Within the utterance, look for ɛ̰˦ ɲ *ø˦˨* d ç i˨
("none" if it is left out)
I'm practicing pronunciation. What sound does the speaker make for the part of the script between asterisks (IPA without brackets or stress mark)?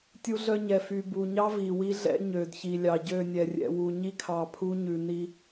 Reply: ø˨